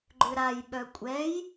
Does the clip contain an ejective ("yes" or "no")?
yes